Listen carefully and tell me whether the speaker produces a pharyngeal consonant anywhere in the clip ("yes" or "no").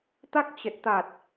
no